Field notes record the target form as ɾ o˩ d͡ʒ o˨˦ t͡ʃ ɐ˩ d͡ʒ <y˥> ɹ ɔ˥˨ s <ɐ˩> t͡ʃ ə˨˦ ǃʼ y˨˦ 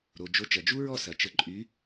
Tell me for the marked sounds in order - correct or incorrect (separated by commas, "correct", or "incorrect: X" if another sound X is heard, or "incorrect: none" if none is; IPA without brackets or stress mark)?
incorrect: u˥, correct